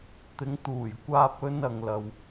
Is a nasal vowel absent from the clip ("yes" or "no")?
yes